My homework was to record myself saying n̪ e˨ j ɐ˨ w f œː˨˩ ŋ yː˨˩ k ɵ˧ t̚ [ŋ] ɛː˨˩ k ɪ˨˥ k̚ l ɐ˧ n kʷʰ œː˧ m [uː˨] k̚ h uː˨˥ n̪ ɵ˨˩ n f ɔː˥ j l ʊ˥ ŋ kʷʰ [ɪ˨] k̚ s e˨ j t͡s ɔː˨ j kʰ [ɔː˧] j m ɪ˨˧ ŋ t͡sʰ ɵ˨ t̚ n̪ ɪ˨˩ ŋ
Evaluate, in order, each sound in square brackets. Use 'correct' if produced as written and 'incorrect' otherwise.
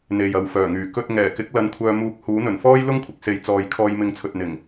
correct, incorrect: uː˧, correct, correct

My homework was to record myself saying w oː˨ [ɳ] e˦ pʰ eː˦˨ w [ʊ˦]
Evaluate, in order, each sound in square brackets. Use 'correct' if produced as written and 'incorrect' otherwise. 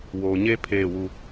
incorrect: ɲ, incorrect: u˦

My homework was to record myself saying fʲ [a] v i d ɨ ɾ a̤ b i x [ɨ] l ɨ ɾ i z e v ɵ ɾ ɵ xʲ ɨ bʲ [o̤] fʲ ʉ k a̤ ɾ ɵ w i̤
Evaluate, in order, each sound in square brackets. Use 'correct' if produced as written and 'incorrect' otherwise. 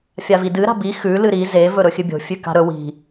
correct, incorrect: ʉ, correct

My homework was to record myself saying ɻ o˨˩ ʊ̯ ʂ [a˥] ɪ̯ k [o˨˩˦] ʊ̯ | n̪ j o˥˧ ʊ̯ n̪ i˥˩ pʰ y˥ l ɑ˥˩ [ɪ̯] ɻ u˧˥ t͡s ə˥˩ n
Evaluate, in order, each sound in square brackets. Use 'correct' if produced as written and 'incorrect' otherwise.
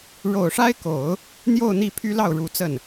correct, correct, incorrect: ʊ̯

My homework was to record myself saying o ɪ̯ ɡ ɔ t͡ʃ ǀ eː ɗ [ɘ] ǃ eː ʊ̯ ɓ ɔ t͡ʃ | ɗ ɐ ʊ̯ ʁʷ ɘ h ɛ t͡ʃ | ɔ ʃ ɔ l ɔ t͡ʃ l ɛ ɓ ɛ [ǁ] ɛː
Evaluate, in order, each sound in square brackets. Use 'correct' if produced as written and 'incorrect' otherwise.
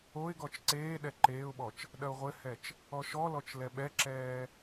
incorrect: ɛ, correct

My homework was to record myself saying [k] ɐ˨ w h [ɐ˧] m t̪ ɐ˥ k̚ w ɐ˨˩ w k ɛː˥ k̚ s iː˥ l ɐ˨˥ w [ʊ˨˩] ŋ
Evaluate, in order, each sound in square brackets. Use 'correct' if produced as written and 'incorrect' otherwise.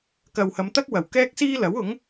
correct, incorrect: ɐ˨˧, incorrect: ʊ˨˥

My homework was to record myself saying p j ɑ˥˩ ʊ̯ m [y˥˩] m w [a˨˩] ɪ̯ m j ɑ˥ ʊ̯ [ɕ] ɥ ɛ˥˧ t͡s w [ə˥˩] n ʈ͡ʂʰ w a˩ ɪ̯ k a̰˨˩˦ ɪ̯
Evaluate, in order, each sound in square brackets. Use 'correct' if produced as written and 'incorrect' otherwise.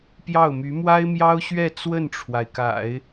incorrect: y˧˥, incorrect: a˥, correct, correct

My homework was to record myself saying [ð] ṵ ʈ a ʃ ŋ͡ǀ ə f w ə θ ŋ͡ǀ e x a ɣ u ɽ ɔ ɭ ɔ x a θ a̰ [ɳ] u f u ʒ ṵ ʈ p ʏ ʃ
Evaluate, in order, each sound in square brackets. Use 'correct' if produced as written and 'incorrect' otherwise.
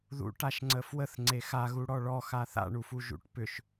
correct, correct

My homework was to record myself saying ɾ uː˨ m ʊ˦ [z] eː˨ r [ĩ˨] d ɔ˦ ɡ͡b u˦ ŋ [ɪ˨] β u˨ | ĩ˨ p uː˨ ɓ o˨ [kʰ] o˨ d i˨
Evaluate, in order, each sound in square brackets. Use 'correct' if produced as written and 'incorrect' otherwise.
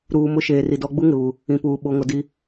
incorrect: ʃ, incorrect: i˨, correct, incorrect: ŋ

